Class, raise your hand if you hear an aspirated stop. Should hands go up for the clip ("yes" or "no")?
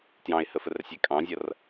no